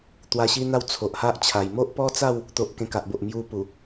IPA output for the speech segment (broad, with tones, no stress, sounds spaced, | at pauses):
t̪ w a˧ ɕ i˦ n̪ a˥˧ w t͡sʰ o˨ ʔ h a˦ ʔ t͡ɕʰ a˨˩ j m o˦ ʔ p ɔ˦ t͡s a˥˧ w | t̪ o˨ ʔ k ẽ˧ k a˨ ʔ b o˨ ʔ m j u˧ p u˨˩